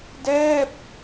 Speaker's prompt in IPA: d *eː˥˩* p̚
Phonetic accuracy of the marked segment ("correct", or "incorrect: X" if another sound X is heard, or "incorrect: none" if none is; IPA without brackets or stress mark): incorrect: ɛː˥˩